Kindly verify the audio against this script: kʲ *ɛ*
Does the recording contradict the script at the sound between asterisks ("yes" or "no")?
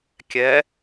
no